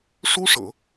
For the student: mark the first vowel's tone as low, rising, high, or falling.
high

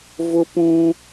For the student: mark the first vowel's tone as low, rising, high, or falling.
high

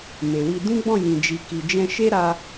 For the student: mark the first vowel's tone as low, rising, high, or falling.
low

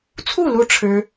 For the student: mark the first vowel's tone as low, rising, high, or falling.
falling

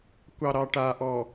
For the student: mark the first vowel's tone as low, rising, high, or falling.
low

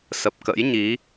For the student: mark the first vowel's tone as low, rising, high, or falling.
low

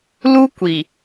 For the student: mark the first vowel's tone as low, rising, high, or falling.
high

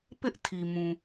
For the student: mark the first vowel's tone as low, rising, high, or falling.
high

